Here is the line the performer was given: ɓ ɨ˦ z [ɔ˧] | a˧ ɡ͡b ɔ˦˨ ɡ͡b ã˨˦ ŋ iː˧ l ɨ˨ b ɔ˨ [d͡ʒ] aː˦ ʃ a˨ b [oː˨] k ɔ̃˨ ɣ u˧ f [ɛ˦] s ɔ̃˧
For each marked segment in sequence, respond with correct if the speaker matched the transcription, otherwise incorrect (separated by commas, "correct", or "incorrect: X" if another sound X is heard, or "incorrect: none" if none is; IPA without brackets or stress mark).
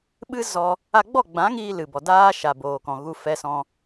correct, incorrect: d, correct, incorrect: ɛ˧